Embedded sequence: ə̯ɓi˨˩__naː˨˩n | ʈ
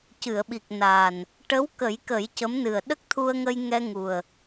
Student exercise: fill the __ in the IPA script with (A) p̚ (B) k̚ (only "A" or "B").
B